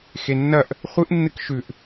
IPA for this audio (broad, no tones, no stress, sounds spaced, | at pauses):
x e nː ɐ ʔ | χʷ ɨ ʔ nː ɨ k ʃ ʉ ʔ